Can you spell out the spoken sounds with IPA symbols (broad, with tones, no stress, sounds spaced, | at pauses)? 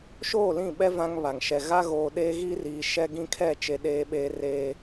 ʃ oː˦˨ l ĩ˦˨ ɓ ɛ˦ v ã˦ ŋ β a˨ ŋ ʃ ɛ˨ ɣ a˦ ɣ oː˨ ɗ eː˦ ɣ i˦ r iː˨ ʃ ɛ˦ ɡ ĩ˦ kʰ ɛ˦˨ t͡ʃ e˨ ɗ eː˦ ɓ eː˦ r eː˦